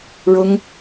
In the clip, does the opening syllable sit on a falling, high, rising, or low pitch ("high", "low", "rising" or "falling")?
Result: high